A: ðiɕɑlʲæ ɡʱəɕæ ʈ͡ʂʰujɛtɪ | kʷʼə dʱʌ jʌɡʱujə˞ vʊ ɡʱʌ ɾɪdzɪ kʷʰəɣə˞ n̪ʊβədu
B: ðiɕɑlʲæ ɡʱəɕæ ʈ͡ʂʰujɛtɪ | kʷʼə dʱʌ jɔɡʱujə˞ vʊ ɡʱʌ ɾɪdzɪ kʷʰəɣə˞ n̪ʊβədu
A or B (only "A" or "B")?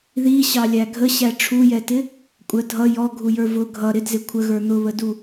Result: B